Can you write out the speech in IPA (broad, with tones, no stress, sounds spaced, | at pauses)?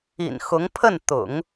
ḭ˨˩ n x ʊ˧˥ ŋ pʰ ə˥˩ n t̪ ʊ̰˨˩˦ ŋ